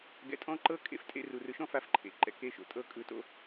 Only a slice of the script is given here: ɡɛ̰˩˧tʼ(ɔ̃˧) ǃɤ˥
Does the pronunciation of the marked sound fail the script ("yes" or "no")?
yes